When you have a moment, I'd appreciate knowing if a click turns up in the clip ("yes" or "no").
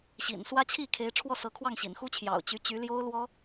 no